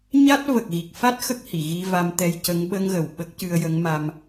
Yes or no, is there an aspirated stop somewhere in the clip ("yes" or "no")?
no